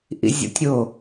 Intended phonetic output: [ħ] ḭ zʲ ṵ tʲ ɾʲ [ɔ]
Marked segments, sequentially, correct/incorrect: incorrect, incorrect

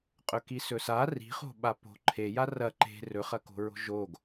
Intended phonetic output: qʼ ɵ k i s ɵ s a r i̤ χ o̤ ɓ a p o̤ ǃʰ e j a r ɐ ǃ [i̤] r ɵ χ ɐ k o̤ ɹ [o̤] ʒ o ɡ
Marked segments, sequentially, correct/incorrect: incorrect, correct

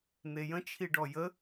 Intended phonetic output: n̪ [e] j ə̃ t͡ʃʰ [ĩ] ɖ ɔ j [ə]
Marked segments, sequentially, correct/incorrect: correct, incorrect, correct

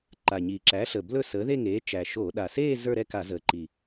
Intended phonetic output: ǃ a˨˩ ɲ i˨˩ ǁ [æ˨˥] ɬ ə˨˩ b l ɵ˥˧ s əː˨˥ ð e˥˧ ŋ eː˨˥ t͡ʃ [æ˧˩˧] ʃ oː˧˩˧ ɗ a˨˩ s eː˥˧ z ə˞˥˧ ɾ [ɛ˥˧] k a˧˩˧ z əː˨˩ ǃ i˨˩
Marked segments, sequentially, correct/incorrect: correct, incorrect, correct

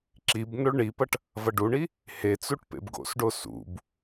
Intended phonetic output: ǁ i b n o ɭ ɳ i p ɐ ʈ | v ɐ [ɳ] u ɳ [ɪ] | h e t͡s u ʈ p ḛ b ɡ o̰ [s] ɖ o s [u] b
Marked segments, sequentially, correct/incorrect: incorrect, incorrect, correct, incorrect

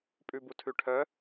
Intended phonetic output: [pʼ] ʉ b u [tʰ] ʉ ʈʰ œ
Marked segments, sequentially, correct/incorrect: correct, correct

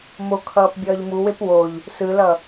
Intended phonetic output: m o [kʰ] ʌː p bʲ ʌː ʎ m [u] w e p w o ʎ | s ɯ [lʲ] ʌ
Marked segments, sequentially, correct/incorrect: correct, correct, incorrect

